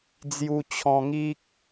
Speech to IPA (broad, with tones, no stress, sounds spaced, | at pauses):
d͡z j u˧ t͡ɕʰ ɔ̃˧ ŋ i˦ k̚